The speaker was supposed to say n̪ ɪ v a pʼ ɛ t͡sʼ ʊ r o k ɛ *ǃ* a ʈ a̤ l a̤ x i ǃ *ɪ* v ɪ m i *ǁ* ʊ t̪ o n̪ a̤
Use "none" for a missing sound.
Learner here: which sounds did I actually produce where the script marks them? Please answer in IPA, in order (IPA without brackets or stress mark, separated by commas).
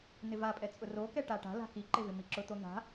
ʈ, ɪ, ǁ